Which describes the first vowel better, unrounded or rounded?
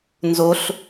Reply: rounded